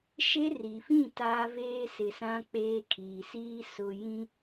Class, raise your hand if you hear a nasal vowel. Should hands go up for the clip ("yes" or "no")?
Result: yes